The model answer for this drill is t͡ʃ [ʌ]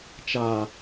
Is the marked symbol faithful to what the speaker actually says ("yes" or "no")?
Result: no